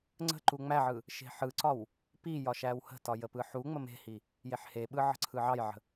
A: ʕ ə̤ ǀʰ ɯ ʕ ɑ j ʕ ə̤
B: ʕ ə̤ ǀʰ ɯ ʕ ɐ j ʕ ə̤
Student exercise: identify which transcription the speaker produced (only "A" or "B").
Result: A